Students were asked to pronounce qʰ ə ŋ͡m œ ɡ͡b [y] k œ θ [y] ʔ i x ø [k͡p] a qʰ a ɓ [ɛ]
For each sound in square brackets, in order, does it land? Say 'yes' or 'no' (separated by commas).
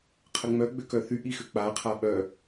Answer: no, yes, yes, no